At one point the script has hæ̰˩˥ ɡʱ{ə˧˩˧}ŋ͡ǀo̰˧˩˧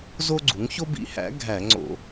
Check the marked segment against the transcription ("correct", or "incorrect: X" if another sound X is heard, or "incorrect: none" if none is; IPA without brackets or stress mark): incorrect: æ˧˩˧